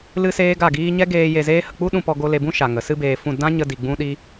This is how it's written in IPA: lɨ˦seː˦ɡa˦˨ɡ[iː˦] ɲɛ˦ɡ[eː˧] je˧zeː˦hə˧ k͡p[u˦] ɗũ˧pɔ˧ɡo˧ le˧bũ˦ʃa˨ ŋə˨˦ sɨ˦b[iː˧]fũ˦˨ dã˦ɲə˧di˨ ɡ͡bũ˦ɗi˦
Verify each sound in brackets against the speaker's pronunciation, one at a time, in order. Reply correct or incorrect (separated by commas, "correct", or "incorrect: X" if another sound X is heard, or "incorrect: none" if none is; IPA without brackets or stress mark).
correct, correct, correct, incorrect: eː˧